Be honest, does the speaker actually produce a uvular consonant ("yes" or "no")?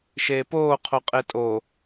yes